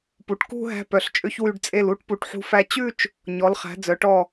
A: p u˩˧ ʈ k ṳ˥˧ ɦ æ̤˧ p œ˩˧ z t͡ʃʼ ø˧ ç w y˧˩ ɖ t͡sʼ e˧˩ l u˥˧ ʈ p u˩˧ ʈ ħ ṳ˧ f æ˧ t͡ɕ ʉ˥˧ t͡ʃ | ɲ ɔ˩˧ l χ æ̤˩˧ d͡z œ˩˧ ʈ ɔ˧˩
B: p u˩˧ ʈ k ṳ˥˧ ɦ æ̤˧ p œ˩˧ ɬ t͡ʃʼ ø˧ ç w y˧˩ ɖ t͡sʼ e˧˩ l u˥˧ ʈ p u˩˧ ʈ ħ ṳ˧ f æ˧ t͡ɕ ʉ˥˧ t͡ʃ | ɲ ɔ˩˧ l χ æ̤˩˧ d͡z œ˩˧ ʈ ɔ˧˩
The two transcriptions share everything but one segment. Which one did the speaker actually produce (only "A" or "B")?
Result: B